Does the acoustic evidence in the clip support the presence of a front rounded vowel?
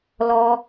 no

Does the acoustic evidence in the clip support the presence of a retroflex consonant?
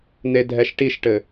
yes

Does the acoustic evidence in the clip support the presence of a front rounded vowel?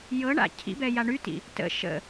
yes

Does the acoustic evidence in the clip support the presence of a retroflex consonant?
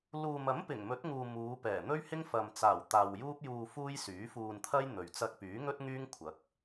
no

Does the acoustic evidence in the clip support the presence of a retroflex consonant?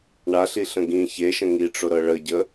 yes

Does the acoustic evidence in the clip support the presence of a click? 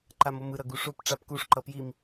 yes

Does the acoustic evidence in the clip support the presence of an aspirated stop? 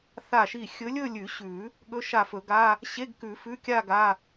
no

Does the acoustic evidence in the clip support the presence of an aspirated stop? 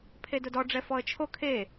yes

